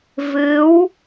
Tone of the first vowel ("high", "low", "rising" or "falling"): rising